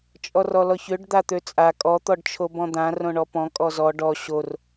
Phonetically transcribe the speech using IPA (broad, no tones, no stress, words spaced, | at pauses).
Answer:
t͡ʃʼɔrɔlɔçøɖ d̪at̪øt͡sʼa kʼɔ t̪ɔɖt͡ʃʰobɔ̃d̪ã rõɳɔpɔ̃ kʼɔzɔ ɖɔ ɕor